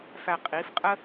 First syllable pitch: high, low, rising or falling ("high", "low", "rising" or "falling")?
low